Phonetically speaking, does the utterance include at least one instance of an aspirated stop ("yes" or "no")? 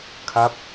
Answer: yes